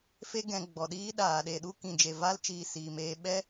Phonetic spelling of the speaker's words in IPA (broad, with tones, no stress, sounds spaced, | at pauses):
f e˦ ɡ ɛ̃˧ ɡ͡b ɔ˨ ɗ iː˦ ɗ aː˨ ɗ e˨ ɗ u˧ k ĩ˨ d͡ʒ e˨ v a˧ l t͡ʃ iː˨ s iː˨ m eː˧ ɓ ɛ˦